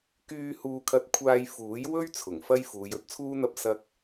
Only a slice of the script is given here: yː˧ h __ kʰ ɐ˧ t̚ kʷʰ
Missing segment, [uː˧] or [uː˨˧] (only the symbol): uː˧